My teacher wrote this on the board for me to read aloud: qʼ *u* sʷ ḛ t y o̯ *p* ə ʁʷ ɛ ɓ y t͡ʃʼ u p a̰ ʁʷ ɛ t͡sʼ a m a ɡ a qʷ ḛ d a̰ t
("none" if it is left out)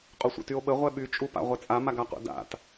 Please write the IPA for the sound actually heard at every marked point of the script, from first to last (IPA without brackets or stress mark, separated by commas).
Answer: u, ɓ